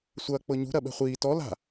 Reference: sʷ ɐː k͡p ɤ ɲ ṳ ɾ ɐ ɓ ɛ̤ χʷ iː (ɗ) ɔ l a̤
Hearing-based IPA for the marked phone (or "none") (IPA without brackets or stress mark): t